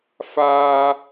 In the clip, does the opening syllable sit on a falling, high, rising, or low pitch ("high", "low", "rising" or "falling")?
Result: high